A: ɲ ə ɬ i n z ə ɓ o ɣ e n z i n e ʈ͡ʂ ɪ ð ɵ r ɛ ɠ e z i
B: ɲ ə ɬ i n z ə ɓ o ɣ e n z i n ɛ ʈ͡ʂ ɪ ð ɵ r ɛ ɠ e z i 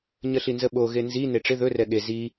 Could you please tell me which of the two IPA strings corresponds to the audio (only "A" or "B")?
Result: A